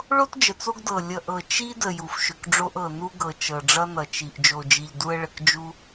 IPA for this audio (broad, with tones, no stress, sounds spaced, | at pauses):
ɭ o˦ t d͡ʒ ə˨ t͡s o˦ ɡ d ɤ˨ lʲ ʌ˨ ʔ ɤ˨ t͡ʃ i˦ d ə˨ j u˨ f ʃ ʏ˨ k ɖ͡ʐ o˦ ʔ ɤ˨ n u˦ ɡ ɤ˨ t͡ʃ ɤ˨ ɖ͡ʐ ʌ˦ n ʌ˨ t͡ʃ i˨ ʔ d͡ʒ o˨ d͡ʒ i˨ ʎ d u˦ ə̯ ɭ ə˨ k d͡ʒ u˦